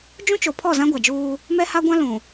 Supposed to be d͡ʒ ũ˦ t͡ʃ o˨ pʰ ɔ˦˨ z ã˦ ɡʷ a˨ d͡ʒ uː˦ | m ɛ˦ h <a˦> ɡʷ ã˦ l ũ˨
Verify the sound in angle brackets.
correct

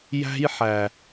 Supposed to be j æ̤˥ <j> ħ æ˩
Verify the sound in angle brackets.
correct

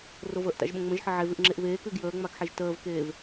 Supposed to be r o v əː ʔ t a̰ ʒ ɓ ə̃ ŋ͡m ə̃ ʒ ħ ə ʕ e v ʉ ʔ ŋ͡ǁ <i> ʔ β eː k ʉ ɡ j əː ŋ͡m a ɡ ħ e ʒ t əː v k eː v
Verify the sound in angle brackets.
incorrect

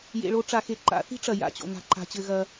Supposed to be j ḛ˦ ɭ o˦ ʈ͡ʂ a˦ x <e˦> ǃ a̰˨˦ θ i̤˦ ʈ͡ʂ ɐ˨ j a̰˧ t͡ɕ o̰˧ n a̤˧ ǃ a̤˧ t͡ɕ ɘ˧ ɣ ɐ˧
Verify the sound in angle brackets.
correct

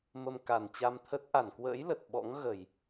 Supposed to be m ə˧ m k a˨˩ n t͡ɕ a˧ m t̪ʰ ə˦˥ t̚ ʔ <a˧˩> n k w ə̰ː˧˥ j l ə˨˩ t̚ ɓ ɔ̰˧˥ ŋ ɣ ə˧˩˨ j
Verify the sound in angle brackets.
correct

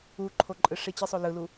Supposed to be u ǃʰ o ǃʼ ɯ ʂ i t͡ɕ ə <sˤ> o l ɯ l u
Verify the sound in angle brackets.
correct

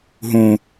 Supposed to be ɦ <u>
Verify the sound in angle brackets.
incorrect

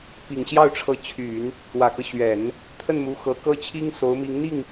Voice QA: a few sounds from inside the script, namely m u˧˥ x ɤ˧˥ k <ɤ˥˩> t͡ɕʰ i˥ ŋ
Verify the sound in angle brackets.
incorrect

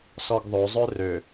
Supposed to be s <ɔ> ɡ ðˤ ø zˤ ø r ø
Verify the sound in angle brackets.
correct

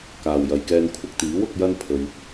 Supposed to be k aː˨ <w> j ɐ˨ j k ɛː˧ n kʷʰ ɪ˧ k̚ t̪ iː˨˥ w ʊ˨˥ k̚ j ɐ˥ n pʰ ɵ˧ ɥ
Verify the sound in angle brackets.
correct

